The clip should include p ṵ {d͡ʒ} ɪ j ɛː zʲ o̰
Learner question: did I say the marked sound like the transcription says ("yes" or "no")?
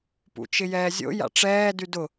no